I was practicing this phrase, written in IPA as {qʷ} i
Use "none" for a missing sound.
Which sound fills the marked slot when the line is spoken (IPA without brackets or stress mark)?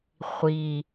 χʷ